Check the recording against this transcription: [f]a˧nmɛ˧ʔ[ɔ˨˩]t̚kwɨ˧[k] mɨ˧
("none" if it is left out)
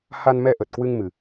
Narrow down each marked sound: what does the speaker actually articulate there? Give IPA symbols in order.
h, ə˨˩, ŋ

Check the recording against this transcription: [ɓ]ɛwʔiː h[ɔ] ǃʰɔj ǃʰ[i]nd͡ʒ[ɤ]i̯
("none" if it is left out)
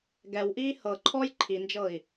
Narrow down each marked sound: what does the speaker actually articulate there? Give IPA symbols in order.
ɡ, ɤ, i, ɤ

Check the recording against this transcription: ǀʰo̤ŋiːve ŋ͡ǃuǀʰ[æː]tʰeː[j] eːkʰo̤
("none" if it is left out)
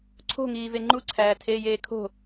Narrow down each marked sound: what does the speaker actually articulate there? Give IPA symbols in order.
æː, j

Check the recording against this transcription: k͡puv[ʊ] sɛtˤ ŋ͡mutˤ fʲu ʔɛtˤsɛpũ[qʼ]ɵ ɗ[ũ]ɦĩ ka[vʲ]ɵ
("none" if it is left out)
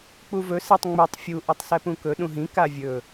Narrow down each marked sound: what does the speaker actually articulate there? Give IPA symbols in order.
ɵ, k, ũ, vʲ

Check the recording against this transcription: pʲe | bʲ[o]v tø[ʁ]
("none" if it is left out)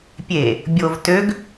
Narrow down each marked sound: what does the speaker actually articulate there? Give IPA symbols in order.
o, ɡ

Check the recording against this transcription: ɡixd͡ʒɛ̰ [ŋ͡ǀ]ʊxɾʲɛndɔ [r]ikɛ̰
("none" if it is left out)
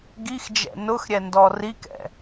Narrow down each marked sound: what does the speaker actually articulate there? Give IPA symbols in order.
n, r

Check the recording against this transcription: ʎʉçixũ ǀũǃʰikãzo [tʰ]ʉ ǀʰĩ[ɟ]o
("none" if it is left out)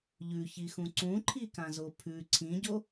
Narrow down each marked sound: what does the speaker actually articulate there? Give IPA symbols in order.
pʰ, ɟ

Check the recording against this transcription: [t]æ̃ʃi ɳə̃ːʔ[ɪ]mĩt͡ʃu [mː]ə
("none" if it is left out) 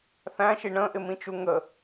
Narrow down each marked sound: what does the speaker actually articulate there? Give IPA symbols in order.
θ, ɪ, ŋ

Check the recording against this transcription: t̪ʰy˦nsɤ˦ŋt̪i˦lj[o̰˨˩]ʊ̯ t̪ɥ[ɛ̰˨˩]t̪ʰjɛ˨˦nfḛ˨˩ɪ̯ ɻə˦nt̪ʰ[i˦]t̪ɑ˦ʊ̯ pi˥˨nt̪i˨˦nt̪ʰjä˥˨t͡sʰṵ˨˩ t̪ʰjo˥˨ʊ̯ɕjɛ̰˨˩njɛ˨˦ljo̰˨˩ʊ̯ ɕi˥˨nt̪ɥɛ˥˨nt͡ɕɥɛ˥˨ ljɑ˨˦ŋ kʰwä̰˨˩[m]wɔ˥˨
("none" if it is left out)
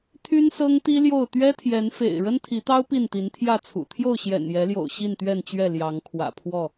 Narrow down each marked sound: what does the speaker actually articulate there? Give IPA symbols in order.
o˥˨, ɛ˦, i˨˦, pʰ

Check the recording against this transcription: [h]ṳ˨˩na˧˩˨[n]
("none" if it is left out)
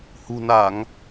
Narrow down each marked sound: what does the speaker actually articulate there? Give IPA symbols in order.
h, ŋ

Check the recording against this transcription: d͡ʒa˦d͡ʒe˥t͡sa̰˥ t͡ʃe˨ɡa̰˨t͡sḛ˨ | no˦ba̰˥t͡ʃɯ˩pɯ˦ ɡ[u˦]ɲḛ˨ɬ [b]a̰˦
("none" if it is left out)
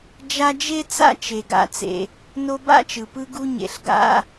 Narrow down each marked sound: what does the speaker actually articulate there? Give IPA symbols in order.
u˦, ɡ

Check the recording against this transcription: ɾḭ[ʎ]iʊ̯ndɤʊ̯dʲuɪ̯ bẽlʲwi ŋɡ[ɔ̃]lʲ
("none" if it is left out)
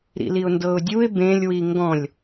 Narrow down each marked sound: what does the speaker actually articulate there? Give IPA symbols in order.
l, ɔ̃

